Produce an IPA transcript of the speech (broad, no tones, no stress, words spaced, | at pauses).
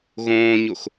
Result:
ɣõːɲox